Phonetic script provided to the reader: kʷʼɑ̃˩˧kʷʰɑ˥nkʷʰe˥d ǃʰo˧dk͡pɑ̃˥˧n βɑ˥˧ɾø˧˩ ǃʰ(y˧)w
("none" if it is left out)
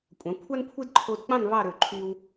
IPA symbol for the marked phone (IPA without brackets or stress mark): y˧